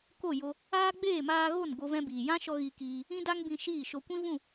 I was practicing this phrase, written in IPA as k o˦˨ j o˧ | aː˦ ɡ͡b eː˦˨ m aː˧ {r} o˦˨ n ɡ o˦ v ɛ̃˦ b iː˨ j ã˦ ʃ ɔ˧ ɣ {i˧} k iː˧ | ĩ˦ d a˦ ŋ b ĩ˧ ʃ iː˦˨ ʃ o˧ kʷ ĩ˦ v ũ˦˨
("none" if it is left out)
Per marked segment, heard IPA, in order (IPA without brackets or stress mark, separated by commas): ɣ, i˧